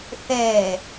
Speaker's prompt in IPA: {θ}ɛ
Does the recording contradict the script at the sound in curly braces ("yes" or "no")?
no